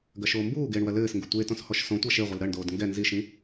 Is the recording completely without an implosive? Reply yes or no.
yes